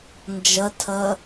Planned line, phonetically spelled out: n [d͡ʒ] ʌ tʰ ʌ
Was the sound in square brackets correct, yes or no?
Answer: yes